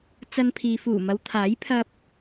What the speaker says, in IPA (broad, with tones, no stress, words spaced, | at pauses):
t͡sɐ˧npʰiː˨fuː˨˩ mɐ˨˧wt̪ʰaː˨˥jpʰɐ˧p̚